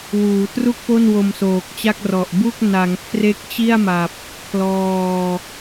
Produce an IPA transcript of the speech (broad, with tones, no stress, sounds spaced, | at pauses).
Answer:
w uː˩˦ t r u˥˩ k̚ p o˥˩ n w o˧ m s oː˨˩ k̚ t͡ɕ a˥˩ k̚ r ɔ˨˩ ʔ b u˥˩ k̚ n a˩˦ ŋ kʰ r e˦˥ k̚ t͡ɕ i˥˩ a̯ m a˨˩ p̚ | kʰ l ɔː˧